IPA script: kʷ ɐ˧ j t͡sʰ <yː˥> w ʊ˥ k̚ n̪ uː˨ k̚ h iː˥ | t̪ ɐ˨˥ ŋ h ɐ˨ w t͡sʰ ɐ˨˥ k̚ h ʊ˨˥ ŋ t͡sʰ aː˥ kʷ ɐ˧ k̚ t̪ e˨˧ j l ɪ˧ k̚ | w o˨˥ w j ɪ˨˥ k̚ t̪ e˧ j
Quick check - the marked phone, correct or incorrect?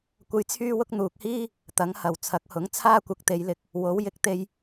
correct